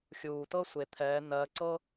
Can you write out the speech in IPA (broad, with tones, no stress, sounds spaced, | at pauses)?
xʲ uː˨ t ɤ˥ sʷ e˨ t̪ʰ ɛː˨˦ n ɜ˨˦ ǀ ɤ˥